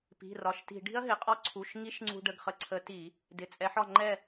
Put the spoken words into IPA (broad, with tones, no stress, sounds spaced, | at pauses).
p i̤˩˧˩ r ɒ˩˧˩ ʃ t i̤˧˩˧ ɖ i̤˦˥ ɐ̯ ɦ ɪ˩˧˩ qʼ ɒ˥˨ ǀʰ u˩˧˩ ʃ ŋ i˦˥ ʃ ŋ͡ǀ ṳ˧ ɖ ə˩˧˩ ɡ χ ə˧ ǀʰ ə˨˥ t i˧˩˧ | d ɪ˩˧˩ t͡sʼ ɛ˨˥ ħ ɒ˥˨ ŋ͡ǃ ɛ˥˨